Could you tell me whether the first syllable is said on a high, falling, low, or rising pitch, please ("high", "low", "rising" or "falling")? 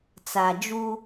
low